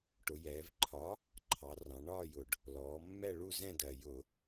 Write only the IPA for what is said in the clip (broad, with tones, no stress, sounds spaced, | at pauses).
ʈ ʊ˩˧ j ɛː˩˧ v ǃʰ ɒ˨˥ | ǃʰ ɑ˩˧ r ɑ̃˩˧ ɳ ɒː˥˧ j ʊ˨˩ ɖ | l ɔː˩˧ mː ɛ˥˧ ɭ u˥˧ z ɛ̃˥˧ d ɜ˨˩ j ʊ˧˩˧